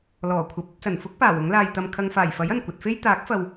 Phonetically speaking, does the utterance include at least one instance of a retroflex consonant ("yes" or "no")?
no